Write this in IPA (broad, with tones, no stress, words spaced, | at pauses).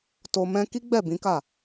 to˧mɛ̃˦ ki˦ɡ͡bɛ˦˨bĩ˨˦ka˦˨